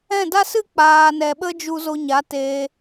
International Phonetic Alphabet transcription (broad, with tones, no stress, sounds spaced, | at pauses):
ɛ̃˦˨ d a˦ s ɨ˦ k͡p aː˨ n ɛ˨ ɓ ə˦ d͡ʒ u˧ z o˧ ɲ a˨˦ t eː˧